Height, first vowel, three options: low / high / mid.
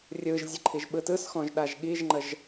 high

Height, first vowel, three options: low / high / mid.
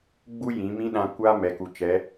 high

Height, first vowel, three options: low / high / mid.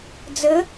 mid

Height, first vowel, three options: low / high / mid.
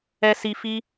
mid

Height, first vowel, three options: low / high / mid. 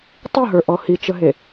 high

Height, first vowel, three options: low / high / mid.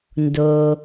mid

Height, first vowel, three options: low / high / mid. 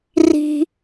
high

